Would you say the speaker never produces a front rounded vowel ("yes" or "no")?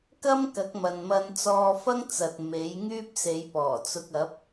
no